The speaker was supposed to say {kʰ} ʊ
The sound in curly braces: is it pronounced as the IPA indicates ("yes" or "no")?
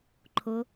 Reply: no